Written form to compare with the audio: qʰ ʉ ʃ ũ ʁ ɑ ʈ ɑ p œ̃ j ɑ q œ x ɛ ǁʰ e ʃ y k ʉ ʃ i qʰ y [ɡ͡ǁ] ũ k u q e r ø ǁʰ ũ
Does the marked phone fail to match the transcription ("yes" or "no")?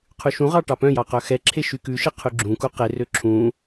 no